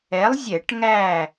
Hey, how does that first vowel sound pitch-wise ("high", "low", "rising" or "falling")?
rising